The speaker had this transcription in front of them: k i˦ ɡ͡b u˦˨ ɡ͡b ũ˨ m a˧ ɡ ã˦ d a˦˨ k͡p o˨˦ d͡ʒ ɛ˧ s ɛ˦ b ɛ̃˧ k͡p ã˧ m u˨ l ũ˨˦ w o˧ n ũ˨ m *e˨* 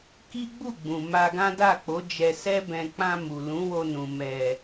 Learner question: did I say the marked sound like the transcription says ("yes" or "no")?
no